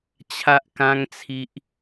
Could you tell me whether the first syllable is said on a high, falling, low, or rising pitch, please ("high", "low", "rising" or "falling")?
high